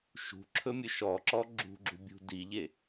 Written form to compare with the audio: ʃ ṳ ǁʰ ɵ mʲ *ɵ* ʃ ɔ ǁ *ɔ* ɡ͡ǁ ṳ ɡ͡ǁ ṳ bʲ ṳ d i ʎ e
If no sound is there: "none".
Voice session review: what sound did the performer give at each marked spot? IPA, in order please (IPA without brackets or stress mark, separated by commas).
ɵ, ɔ